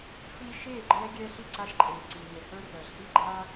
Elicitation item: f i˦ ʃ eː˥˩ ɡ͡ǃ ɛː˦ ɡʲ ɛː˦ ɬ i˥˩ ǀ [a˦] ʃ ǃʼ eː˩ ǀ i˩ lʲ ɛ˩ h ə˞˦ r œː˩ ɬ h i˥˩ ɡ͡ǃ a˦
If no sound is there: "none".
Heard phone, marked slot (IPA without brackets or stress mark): a˦